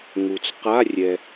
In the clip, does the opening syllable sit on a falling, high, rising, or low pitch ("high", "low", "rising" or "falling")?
low